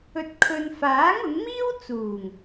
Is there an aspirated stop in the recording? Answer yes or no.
yes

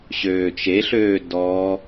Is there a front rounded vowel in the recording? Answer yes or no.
yes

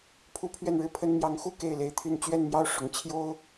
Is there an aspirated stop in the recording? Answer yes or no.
yes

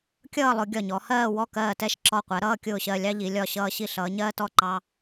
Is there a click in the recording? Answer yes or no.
yes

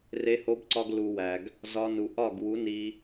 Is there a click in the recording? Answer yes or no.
yes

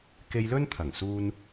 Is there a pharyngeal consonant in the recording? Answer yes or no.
no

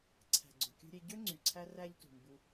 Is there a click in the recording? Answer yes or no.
yes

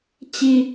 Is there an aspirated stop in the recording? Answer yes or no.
no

